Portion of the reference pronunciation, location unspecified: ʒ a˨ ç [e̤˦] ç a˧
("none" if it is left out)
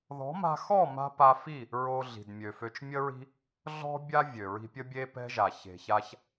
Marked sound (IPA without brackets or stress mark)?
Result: e̤˨